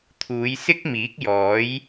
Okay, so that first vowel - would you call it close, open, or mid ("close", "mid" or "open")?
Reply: close